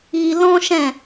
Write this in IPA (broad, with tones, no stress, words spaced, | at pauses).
i˧lɔ̃˦ ʃɛ̃˦˨